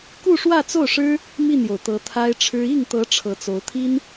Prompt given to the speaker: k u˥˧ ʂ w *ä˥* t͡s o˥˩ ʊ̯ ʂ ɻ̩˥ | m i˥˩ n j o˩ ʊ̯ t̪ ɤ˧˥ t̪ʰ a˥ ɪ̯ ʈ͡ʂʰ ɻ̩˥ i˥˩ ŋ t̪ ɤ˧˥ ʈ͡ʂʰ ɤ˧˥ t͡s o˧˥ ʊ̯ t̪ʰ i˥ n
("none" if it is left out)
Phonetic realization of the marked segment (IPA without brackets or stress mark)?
ä˥˧